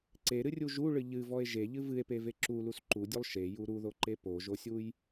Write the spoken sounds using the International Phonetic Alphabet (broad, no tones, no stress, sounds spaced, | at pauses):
ǀ e ɾ ɨ rʲ u ʒ u ɭ ɨ ʎ ɨ v ɔ e̯ ʒ e ʎ ɨ v ɨ e̯ p e v e ǁ u l u s ǃ u dʲ o lˠ ʃ e j u ɾ u ð o ǃ e p o ʒ o sʲ u j